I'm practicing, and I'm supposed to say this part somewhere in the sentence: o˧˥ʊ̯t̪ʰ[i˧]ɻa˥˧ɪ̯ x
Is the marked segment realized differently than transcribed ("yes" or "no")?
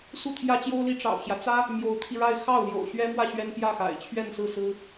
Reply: no